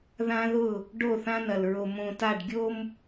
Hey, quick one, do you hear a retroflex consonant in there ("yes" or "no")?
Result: yes